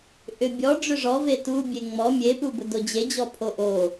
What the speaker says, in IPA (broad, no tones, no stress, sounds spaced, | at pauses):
ʔ ʏ bʲ ɔ ɖ͡ʐ ʏ ʐ ɔ v e t u bʲ e ŋ͡m ɔ mʲ e p u b ʊ d o d͡ʑ e d͡ʑ ɔ pʰ o ʔ o